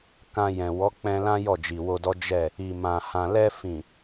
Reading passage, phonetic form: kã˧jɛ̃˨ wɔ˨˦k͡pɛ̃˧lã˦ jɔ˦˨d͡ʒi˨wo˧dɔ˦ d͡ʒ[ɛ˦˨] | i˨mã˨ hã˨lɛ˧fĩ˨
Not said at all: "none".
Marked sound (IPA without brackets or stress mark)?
ɛ˦˨